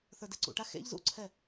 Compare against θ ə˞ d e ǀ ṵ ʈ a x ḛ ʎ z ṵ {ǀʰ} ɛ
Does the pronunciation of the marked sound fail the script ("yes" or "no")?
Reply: no